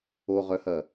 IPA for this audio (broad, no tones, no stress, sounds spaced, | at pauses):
o ʁ œ h ɐ